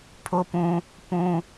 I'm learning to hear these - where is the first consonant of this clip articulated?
lips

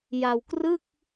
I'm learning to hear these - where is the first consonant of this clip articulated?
palate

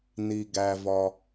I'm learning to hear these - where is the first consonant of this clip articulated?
tongue tip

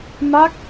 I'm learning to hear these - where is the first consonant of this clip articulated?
lips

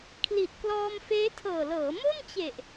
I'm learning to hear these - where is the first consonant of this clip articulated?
velum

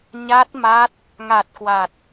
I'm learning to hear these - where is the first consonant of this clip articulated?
palate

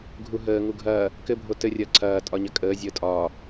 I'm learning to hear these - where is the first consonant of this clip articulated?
velum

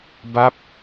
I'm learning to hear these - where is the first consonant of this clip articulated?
lips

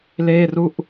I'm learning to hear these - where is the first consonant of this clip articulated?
tongue tip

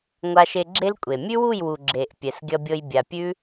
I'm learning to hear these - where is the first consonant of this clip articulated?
velum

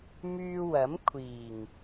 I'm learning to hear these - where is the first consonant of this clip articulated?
lips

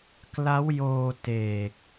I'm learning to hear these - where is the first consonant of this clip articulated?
velum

